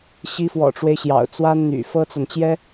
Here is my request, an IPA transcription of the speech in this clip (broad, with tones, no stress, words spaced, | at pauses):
ɕi˧˥fwɔ̰˨˩ʈ͡ʂwe˦ɪ̯ɕjɑ̰˨˩ʊ̯ t͡swa˥nn̪y̰˨˩ fɤ˥t͡sa˨nt͡ɕjɛ˥